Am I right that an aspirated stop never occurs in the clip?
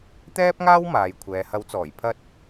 no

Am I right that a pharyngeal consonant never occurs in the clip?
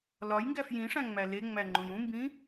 yes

